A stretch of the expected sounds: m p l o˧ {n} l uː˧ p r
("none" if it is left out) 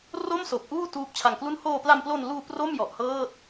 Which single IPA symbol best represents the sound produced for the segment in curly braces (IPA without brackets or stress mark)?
n